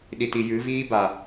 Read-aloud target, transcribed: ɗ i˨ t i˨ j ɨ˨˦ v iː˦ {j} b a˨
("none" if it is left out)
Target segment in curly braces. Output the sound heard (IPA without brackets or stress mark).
none